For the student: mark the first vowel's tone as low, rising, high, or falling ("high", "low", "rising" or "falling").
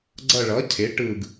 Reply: falling